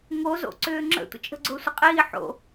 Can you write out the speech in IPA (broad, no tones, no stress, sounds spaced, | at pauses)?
ŋ o z o̰ ǀ ʏː ŋ͡ǁ ə̰ tʷ ə̰ t͡ʃʼ ə̤ ɡ͡ǀ ʊː sʷ ə qʼ iː ħ o̰